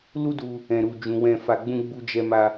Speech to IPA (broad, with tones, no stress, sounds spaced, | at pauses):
l u˦ d u˧ | ɛ̃˨ ɾ u˨ d͡ʒ ũ˨ w ɛ̃˧ f a˧ ɡ͡b ũ˦ ɡ͡b u˦ d͡ʒ ɛ˦ m a˦